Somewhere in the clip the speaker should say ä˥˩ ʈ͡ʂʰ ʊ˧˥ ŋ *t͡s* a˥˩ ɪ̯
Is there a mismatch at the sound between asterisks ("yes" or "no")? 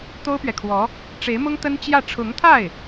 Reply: yes